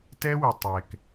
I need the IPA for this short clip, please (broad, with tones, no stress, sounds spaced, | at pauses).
t ɛ˦ w ɪ˨ tˤ ɛ˨ k